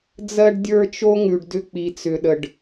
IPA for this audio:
d͡z ɜ˦ ɖ dʲ ə˞˦ t͡ʃ o˦ ŋ ʉ˨ ɖ d ʏ˦ k͡p i˨ t͡s ʏ˨ ɗ ə˨ ɖ

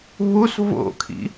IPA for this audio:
β u s v o̰ kʰ ḭ

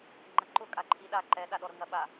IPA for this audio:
ŋ͡ǃ ɐ ǃ ʊ kʼ a ǃʰ i ɗ a ǃ ɛ ɗ a ɗ ɔ ɾ ʊ ŋ ɐ ɓ a

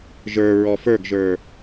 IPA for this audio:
ʒ ə˞ ɹ ɔ f ə˞ ɡ ʒ ə˞

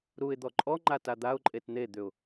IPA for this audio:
ɾ u ɪ̯ d̪ ɔ ǃʼ ɔ ŋ͡ǃ a t a d̪ a ʊ̯ ǃʼ e t n̪ e d̪ ʏ ʊ̯

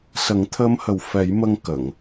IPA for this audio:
s ə˨˩˦ ŋ t̪ʰ əː˧˥ m h ə˨˩ w f ɛ˨˩˦ j m ə˧ ŋ k ə˨˩˨ ŋ

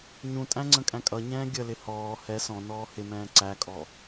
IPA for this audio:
ɲ ũ tʼ æ̃ ŋ͡ǀ ə̃ kʼ æ̃ kʼ ʌ ɲ ɛ̃ː ɡʲ ə l ɪ h ɔː h ɛ s ɔ̃ n ɔː h ɪ m ɛ̃ː ǀ æ kʼ ɔ

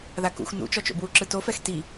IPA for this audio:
ð a k ṵ x n ṵ t͡ʃ ɔ t͡ʃ o̰ b w u ǁ ɯ t o f ɛ x t i

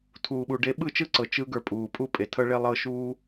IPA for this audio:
tʰ uː˨ ɓ u˨ ɖ e˧ ɓ ɯ˦˨ t͡ʃ ɯ˦ ǀ ɤ˨ t͡ʃ ɯ˧ ɡ ə˞˧ pʼ uː˨ pʼ u˦ pʼ e˨ tʰ ɤ˦ ɭ e˦ lˠ ɤ˦ ʃ uː˦

